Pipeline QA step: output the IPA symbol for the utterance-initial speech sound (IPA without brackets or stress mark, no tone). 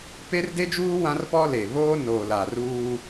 p